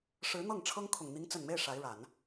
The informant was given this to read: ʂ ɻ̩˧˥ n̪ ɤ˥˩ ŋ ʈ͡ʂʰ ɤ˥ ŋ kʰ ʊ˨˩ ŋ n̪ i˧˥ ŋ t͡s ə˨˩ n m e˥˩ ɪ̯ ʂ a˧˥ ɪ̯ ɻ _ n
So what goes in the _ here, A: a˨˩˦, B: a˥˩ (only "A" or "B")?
A